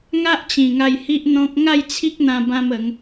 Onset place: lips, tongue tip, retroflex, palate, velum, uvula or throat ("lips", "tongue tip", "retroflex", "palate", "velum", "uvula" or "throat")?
velum